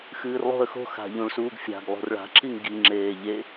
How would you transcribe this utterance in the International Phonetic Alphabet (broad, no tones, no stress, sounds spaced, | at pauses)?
x ɨː r lˠ o̤ ə̯ x o̤ x a̤ ʎ ũ ɭ s uː ɡ fʲ a̤ ɡ lˠ o̤ r ɭ a̤ ǁ i ŋ ɡ i ŋ͡ǁ eː ʎ e